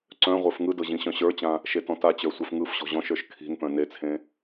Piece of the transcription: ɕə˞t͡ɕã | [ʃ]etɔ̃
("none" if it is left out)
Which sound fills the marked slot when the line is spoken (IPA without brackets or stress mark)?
ʃ